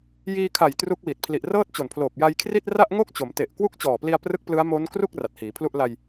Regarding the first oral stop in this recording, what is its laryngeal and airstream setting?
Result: aspirated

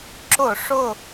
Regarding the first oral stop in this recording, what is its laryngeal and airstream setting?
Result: click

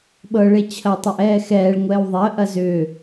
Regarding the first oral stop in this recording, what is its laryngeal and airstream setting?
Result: implosive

